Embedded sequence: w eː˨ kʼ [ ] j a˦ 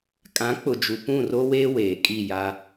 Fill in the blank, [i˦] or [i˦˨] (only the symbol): i˦˨